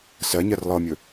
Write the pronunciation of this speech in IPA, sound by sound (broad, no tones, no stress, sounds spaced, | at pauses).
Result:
s ɜ ɲ ɜ r lˠ ɤ mʲ ɵ